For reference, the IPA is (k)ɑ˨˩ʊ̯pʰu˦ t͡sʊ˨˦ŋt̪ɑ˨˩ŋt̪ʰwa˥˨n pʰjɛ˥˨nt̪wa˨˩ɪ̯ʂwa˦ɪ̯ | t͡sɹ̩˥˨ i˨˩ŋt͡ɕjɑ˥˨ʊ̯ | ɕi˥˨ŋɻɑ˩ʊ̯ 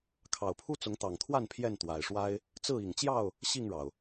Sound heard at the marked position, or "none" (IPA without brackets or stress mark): kʰ